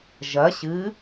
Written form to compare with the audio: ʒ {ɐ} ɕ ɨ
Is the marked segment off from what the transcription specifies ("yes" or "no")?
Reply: no